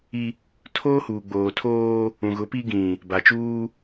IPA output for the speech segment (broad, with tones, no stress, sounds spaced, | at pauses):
i˦ | tʰ oː˦ h uː˨ ɡ͡b oː˨ tʰ oː˦ | ũ˨ ɣ ʊ˨˦ p i˦ ɡ ĩ˨ | b a˨ t͡ʃ uː˦